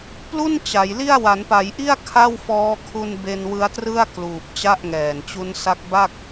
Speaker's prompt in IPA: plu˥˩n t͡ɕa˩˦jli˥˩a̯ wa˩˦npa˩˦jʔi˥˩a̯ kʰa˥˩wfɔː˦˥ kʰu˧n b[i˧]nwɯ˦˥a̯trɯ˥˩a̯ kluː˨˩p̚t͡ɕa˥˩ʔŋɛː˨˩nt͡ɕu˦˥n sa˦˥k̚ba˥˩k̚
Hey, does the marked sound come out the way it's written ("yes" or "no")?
no